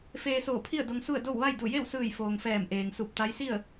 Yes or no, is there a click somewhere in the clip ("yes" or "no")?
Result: no